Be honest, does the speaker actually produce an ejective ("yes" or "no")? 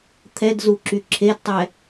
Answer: no